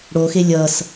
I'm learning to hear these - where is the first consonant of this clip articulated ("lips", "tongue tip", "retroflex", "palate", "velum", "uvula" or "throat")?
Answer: retroflex